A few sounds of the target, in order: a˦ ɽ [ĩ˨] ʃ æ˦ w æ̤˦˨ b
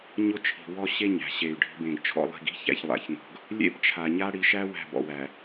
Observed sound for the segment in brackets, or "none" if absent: i˨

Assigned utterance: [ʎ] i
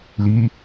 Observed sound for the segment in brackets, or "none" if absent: l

